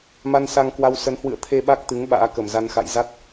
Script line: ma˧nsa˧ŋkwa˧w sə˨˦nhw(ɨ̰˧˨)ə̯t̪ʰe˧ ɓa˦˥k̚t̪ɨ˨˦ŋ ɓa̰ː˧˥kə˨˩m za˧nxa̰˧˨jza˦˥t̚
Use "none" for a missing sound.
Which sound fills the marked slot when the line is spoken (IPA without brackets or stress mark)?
ɨ̰˧˨